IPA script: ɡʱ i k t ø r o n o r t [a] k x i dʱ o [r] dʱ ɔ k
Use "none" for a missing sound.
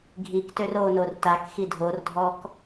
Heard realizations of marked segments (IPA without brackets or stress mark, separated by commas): a, r